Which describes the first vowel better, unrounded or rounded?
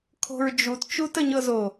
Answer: rounded